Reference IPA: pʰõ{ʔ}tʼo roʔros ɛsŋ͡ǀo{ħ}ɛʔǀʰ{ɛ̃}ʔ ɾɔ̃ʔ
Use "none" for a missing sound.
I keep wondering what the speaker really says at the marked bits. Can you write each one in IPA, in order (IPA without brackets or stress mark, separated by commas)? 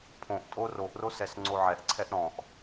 ʔ, ʕ, ɛ